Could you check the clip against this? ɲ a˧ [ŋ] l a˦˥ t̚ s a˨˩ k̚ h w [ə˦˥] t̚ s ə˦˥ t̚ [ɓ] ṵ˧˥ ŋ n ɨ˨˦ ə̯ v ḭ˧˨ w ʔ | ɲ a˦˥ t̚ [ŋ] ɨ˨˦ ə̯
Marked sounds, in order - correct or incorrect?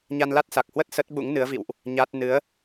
incorrect, correct, correct, incorrect

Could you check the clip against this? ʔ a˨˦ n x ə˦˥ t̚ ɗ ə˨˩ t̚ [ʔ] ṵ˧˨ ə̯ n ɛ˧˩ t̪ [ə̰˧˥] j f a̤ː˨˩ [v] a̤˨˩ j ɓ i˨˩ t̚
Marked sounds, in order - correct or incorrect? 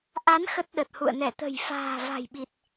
incorrect, incorrect, correct

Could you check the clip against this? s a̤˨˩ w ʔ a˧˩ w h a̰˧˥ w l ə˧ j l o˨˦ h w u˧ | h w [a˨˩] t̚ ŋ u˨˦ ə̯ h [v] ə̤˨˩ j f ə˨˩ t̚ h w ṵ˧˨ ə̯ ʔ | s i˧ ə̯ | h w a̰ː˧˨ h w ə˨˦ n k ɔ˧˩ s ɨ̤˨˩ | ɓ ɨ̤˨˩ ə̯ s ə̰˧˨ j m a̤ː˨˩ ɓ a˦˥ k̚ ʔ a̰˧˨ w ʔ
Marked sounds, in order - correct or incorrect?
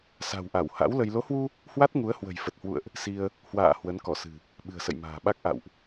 incorrect, incorrect

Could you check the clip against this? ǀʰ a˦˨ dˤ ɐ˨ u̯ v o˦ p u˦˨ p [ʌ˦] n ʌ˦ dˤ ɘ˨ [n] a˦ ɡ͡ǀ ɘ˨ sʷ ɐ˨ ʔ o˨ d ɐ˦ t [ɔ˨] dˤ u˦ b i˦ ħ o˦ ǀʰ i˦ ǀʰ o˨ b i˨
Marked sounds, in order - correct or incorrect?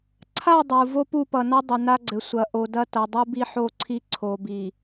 incorrect, correct, incorrect

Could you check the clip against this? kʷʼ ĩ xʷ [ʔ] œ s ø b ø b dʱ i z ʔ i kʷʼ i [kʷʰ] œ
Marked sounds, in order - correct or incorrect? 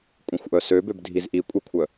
correct, correct

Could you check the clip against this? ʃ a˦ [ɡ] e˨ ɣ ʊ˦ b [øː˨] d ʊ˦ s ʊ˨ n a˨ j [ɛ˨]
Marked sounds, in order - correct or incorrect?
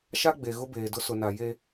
incorrect, incorrect, incorrect

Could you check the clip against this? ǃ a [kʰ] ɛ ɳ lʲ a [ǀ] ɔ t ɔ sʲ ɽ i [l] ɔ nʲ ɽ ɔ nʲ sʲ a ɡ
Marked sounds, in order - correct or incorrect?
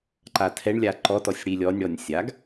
incorrect, incorrect, incorrect

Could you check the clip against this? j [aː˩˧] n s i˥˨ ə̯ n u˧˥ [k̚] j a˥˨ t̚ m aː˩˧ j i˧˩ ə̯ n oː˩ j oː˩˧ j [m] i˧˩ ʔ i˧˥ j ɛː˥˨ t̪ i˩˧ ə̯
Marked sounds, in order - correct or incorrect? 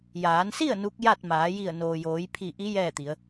correct, correct, incorrect

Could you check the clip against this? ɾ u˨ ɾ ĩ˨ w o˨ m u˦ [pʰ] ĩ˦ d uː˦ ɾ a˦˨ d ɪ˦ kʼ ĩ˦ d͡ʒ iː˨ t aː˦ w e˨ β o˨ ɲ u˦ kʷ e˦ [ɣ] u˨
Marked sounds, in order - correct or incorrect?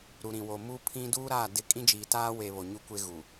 correct, correct

